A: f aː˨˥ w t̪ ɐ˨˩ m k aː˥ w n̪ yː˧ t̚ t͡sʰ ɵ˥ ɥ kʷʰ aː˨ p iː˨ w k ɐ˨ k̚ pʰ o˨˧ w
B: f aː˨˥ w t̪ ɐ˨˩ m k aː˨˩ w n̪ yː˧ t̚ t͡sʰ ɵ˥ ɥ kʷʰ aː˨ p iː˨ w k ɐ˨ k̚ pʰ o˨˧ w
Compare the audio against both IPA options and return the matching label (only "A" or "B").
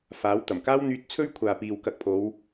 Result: A